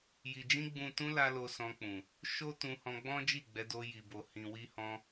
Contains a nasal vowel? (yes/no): yes